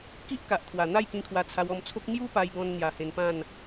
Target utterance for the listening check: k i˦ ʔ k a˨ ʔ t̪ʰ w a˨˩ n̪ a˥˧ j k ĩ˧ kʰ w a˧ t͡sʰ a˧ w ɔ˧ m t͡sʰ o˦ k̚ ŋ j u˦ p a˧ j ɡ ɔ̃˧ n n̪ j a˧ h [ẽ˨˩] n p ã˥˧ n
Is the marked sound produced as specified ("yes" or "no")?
no